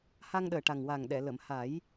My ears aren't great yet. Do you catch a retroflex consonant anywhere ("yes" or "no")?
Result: yes